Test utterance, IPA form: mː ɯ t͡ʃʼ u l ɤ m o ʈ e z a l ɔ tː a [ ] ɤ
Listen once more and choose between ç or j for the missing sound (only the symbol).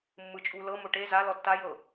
j